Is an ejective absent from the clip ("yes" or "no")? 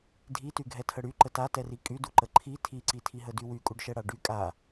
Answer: no